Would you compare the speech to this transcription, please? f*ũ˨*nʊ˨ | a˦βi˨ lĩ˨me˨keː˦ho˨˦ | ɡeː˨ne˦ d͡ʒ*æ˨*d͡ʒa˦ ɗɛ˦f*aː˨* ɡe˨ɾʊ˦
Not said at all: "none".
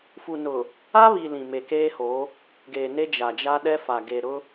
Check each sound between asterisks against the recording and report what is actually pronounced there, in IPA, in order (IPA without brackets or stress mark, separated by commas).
u˨, a˨, a˨